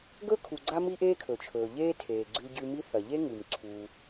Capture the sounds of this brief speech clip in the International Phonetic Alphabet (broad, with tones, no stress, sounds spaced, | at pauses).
ɡ ɵ˥ kʰ u˩ ɡ͡ǀ a˥ m i˥ ʔ eː˥ kʰ ɵ˩ t͡ʃʰ ɵː˩ ʎ eː˥ tʰ eː˩ ɡ͡ǀ ʉ˧ ɟ ʉ˧ m i˥ θ ɐ˩ ʎ e˥ ŋ ʉ˩ m ǀʰ uː˩